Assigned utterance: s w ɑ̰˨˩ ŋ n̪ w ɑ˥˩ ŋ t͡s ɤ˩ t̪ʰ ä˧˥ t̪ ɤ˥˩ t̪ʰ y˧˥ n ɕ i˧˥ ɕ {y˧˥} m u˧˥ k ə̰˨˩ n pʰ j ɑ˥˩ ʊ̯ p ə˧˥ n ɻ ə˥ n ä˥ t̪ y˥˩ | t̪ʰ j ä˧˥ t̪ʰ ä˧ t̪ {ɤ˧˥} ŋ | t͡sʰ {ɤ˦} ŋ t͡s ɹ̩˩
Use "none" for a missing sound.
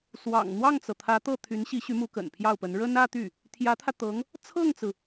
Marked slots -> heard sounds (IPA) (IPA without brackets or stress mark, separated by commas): y˧˥, ɤ˧˥, ɤ˥˩